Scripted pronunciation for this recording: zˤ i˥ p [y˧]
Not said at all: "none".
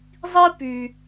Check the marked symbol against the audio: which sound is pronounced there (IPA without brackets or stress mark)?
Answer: y˧